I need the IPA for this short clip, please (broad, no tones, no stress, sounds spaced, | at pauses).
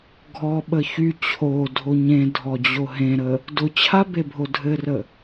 ɡʱ ɔ ɓ ə ç y t͡ɕʰ o dʱ o ɲ ẽ dʱ ɔ d͡ʑ o ɦ ẽ ɾ ə | d ʊ t͡ɕʰ a b e bʱ o dʱ ɘ r ə